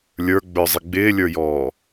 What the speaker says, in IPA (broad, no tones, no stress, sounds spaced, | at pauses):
lʲ ə˞ ɡ͡b ə˞ zˤ ɪ ɡ͡b ɪː lʲ ə˞ j ɔː